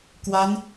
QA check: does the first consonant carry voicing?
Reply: no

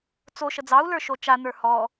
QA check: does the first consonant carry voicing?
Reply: no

